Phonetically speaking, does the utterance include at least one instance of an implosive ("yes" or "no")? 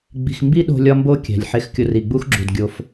yes